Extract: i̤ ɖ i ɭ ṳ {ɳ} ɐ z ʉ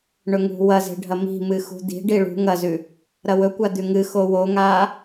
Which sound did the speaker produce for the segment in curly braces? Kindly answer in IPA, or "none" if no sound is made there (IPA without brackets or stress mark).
ŋ